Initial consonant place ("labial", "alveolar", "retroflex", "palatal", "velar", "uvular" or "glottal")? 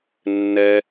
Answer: alveolar